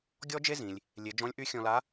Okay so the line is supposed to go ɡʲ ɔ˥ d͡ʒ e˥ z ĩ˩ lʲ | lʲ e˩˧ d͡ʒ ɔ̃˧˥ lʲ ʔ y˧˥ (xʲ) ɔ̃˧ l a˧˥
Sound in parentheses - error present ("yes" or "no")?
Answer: no